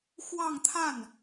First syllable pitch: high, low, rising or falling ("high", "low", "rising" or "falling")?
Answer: falling